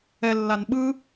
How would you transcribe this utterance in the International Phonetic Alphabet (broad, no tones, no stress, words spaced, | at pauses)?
ɛlːan ɓɯ